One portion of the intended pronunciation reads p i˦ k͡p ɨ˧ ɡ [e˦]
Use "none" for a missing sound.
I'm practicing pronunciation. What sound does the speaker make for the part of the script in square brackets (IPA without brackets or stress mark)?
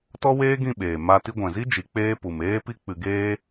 eː˦